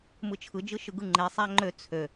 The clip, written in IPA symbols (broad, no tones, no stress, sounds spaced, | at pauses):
m ɯ t͡ʃʰ ɯ d͡ʒ ɯ ʃ ɯ ɡ ɯ ŋ͡ǃ e sˤ æ ŋ͡ǃ ø t͡sʰ ø